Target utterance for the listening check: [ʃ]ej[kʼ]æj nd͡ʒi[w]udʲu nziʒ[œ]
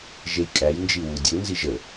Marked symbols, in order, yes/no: no, yes, yes, no

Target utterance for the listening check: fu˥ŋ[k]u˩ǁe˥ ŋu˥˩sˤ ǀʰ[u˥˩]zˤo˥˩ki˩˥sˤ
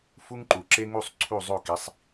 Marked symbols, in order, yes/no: no, yes

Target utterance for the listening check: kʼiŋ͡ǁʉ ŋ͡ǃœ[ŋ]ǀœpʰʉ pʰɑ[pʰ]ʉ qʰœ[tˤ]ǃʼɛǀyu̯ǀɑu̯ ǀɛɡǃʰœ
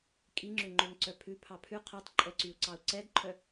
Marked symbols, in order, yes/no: yes, yes, yes

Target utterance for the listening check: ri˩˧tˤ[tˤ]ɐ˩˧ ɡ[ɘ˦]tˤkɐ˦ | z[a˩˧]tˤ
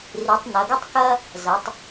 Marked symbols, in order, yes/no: no, yes, no

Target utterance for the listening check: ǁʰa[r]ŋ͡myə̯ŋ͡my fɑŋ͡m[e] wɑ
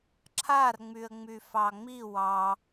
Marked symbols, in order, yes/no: yes, no

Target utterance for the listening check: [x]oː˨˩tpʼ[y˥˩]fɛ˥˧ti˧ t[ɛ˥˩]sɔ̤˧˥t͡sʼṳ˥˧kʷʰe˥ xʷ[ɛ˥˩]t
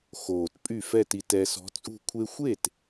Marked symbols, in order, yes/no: yes, yes, no, no

